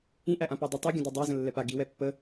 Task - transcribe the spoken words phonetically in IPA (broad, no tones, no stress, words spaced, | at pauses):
ĩʔæʔãpo dˤə tˤɛɡʲə̃ dodˤæ zə̃lːɛpa ɡi wɛpːə